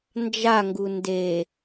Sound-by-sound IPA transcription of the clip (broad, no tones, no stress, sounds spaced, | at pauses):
n d͡ʒ a ŋ ɡ u n d e